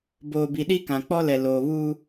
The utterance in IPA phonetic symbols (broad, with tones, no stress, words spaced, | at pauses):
boː˨bi˨ɗi˦kã˨ k͡pɔ˦lɛ˨ loː˨βuː˦